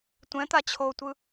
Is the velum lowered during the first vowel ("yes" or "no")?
yes